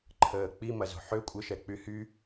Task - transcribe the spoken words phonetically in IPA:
ǃʰ əː k͡p i m ɐ z o̤ ħ ø kʷʼ ɪ ʃ ɛ k͡p y h y

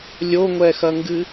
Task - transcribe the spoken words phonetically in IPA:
lʲ o ŋʷ ɛ x ɐ ŋ ɡ ɨ

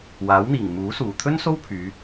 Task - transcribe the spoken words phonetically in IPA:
w aː˨˥ w n̪ iː˨˩ ŋ m uː˨˥ s uː˨˩ t̪ʰ ɵ˥ n s o˥ w pʰ yː˨˧

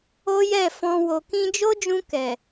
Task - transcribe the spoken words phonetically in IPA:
o˦ j ɛ˦˨ f ɔ̃˧ w o˨ k ĩ˧ d͡ʒ o˦ d͡ʒ ũ˧ k ɛ˨

